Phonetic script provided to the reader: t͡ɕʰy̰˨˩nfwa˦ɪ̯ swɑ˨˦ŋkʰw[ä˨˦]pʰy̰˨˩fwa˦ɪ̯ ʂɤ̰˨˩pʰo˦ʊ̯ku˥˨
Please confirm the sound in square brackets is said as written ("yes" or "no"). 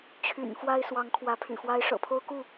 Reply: yes